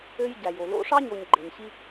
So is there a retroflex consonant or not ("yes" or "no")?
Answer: yes